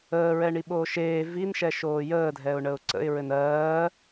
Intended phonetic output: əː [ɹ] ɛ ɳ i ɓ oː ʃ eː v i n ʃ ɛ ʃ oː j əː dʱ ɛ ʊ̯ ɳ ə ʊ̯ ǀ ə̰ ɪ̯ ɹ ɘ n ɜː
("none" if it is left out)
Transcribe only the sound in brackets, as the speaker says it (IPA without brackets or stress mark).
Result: ɹ